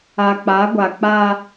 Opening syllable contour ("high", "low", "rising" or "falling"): low